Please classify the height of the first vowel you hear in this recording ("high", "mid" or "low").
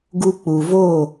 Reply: high